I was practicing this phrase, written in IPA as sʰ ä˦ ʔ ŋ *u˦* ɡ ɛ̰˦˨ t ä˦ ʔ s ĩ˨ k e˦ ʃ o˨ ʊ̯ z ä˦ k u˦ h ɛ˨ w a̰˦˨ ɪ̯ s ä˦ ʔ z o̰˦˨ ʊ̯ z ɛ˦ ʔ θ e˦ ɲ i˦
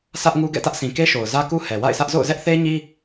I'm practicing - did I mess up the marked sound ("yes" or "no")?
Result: no